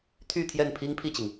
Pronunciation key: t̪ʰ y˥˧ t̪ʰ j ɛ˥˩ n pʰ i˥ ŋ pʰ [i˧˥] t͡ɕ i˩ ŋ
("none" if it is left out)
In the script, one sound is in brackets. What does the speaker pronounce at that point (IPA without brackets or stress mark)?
i˥˩